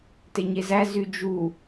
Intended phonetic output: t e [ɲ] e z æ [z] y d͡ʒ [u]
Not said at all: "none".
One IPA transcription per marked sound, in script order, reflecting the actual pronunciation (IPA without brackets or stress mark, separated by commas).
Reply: ɲ, z, u